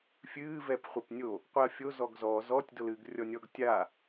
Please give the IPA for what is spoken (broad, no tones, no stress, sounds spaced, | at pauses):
fʲ ɨː v ɛ p χʷ e p nʲ o | qʷ i ɐ̯ fʲ o z ɔ ɡ z ɔ z ɔ tʲ d o l ɨː ɡ rʲ ɔ nʲ ɔ ɡ tʲ a